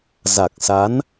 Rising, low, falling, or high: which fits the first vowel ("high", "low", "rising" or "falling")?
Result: low